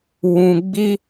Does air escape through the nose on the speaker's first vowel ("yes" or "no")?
yes